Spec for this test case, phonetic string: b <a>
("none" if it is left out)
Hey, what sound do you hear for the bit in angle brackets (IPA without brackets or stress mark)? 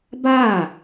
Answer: aː